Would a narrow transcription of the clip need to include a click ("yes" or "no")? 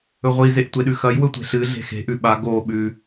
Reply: no